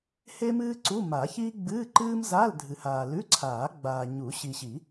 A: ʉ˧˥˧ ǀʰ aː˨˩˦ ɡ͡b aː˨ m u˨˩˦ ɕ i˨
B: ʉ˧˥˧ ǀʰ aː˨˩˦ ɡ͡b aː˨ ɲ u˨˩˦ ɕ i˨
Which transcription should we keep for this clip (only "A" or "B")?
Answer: B